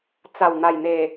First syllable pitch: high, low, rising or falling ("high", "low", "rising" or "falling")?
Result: low